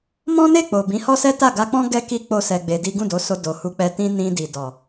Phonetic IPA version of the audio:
m ɔ̃˦ n e˦˨ k͡p o˨ b ĩ˨˦ h ɔ˦ s ɛ˦ t a˦˨ ɡ a˧ k͡p ɔ̃˦ ɡ ɛ˦ k i˦ k͡p o˦ s ɛ˧ ɡ͡b e˧ d i˦ ɡ ũ˦˨ d o˨˦ s o˧ d o˨ h u˧ k͡p ɛ˧ t ĩ˦ n ĩ˧ d i˨ d ɔ˨

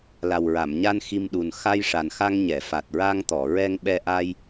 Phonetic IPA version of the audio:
l a˨˩ w ɹ a˨˩˨ m ɲ a˧ n x i˧ m ɗ u˨˩ n x a˧ j ʂ a˨˩ n x a˧ ŋ ɲ ɛ˨˩˨ f a˨˩ t̚ ɹ a˧ ŋ t̪ ɔ˨˩˨ ɹ ɛ˧ ŋ ɓ ɛ˧ ʔ a˧ j

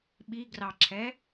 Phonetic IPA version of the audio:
ɓ i ɡ r ɑ ǁʰ ɛ

